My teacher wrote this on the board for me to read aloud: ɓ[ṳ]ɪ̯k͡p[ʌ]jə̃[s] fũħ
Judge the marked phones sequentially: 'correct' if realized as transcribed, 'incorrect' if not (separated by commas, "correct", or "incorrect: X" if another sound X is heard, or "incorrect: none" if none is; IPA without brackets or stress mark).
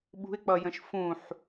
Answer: correct, correct, incorrect: ʃ